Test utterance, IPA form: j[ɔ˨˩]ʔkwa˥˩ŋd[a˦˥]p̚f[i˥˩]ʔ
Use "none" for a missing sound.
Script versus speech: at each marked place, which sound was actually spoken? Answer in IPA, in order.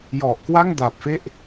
ɔ˨˩, a˨˩, e˥˩

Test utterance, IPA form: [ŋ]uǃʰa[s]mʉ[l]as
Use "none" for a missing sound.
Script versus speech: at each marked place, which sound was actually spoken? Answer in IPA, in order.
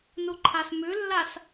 n, s, lː

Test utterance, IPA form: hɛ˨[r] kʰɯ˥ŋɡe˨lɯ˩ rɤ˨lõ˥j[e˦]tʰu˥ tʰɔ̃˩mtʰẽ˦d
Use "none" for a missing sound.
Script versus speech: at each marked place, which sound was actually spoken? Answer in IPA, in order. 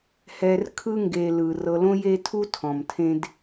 r, e˦

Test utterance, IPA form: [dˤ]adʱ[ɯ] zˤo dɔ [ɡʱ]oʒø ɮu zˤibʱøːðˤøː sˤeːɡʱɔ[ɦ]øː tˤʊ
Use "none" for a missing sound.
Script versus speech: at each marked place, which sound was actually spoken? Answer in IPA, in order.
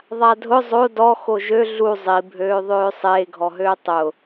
ðˤ, ʊ, x, ɦ

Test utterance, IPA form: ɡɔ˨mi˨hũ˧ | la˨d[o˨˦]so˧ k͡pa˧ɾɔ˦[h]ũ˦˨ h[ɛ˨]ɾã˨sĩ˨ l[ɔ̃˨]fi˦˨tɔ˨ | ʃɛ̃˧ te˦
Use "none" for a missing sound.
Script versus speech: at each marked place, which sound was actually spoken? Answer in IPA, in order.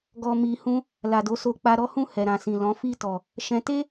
o˨˦, h, ɛ˨, ɔ̃˨˦

